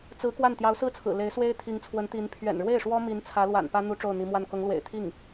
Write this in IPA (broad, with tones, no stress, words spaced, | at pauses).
t͡sɹ̩˧˥ kwa˥˩n t̪jɑ˧˥ʊ̯sɹ̩˥˩t͡sʰɹ̩˨˩ le˧˥ɪ̯swe˥ɪ̯ t̪ʰi˧˥ŋt͡sʰwə˧˥nt̪i˧˥n pʰɥɛ̰˨˩nɻwe˥˩ɪ̯ʂwɔ˥mi˧˥n t͡sʰä˧˥lwa̰˨˩npä˥ n̪u˥ʈ͡ʂo˥˩ʊ̯n̪i˧˥mwa˥˩n kʊ˧˥ŋlwḛ˨˩ɪ̯ t̪ʰi˥˩ŋ